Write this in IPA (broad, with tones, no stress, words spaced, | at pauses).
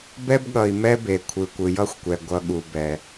bɛ˦bɠʌ˨i̯mɛ˦be˨ kʷʰɯ˨kʷɯ˨jʌ˦xʷkʷɛ˨ ɡʷʌ˨ɠu˨bɛ˨